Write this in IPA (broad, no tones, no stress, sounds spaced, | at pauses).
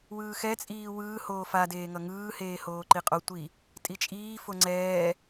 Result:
w ɯː x ɛ t͡sʼ iː w ɯː h oː f a d eː ŋ ʌ ŋ ɯː h eː h oː ǃ i qʼ o tʷ i | tʼ i t͡ʃʼ iː f o ŋ͡ǀ ɛː